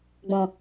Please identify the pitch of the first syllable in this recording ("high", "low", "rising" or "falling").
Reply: low